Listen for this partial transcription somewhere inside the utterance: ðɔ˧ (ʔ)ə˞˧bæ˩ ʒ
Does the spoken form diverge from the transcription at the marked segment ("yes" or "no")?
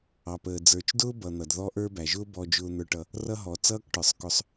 no